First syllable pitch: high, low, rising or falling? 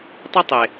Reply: high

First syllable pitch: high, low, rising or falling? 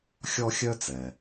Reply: high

